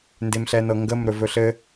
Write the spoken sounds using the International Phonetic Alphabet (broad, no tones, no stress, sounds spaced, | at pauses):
n d e m ɬ ɛ n ɤ ŋ ɡ ə m ɾ ɵ v ɵ ɬ ɘ